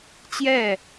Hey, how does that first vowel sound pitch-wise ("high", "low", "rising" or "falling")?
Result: falling